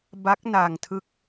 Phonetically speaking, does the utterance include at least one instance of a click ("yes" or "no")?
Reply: no